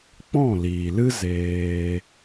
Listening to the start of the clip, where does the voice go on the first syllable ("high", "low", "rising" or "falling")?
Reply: falling